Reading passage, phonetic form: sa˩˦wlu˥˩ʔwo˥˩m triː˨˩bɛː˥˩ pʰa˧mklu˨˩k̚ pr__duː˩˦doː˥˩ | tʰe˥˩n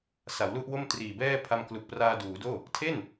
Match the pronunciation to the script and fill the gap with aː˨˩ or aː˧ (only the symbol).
aː˧